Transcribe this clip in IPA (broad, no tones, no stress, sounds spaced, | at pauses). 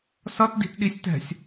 s ʌ t d i̤ t ɗ i sʲ t ɛ̤ sʲ